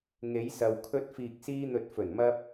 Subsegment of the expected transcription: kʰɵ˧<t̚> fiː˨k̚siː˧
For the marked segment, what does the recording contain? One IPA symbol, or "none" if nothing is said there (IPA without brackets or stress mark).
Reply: t̚